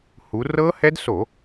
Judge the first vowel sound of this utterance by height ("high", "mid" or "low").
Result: high